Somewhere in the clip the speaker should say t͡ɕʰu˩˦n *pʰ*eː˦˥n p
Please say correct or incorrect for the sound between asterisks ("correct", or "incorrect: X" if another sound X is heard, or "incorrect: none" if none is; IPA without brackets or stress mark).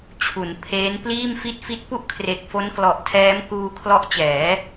correct